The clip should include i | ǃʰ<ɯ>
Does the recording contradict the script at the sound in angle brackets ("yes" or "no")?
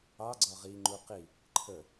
yes